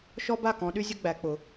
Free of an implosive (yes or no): no